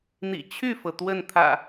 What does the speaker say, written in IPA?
n̪ ḭ˨˩ t͡ɕʰ y˥˨ f ɤ˩ t̪ w ə˥˨ n t̪ʰ ä̰˨˩

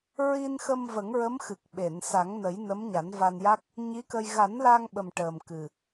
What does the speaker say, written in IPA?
ɹ i˧ n x ə˧ m v ə˨˩˦ ŋ ɹ ə˧˥ m x ɨ˨˩ k̚ ɓ e˨˩˨ n s a˨˩˦ ŋ n ə˨˩˦ j n ə˧˥ m ɲ a˨˩˦ n v a˧ n j a˦˥ k̚ | ɲ i˧˥ k ə˧ j ɣ a˨˩˦ n l a˧ ŋ ɓ ə˨˩ m ʈ əː˨˩ m k ɨ˨˩

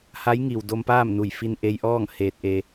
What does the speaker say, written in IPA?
h a˧˥ j ŋ i˩ w d o˧ m p aː˥˨ m n u˧˩ j f i˧ n ʔ e˧ j ʔ ɔː˥˨ ŋ h eː˧ t̚ ʔ e˧

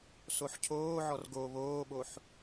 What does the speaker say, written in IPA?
s o ħ cʰ oː ʕ ɔ r ɡ o β oː ɓ o ħ

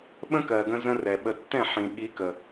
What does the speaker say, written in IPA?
ɓ ə̃˦ k ɜ˨ ɡ ə̃˦ z ə̃˦ r ɛ˨ ɓ ə˨ tː ɛ̃˦˨ ħ ĩ˨ ɠ i˨˦ k ə˨

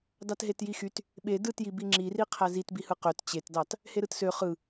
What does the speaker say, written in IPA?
d ɑ t ɦ e t j i x y t | ɓ e d ɯ t j i b i ŋ͡ǁ i r i qʰ æ z i t b i h ɯ q ø t t͡ɕ e t d ɑ t | h e ɾ ɯ t s ø χ ɯ

